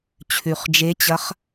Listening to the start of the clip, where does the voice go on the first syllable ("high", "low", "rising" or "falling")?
low